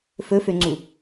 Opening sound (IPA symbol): f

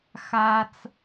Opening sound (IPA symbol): x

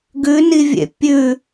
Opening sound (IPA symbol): ɡ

